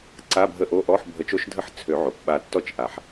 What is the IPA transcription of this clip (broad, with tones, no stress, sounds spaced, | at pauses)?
ǀ a˧˥˧ bʱ ə˧˥˧ ʔ o˧˥˧ ʔ ɔ˧˥˧ ħ bʱ ə˨˩˦ t͡ʃ o˥˧ ʃ dʱ ə˧˥˧ ħ t͡sʰ ø˨˩˦ ʕ o˩ p ɓ a˧˩ tː ɔ˥˧ t͡ʃ ʔ a˨˩˦ ħ